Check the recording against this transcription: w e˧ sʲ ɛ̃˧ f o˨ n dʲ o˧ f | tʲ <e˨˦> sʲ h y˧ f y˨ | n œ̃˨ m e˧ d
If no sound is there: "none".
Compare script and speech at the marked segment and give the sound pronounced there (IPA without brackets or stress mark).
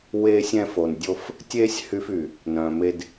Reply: e˦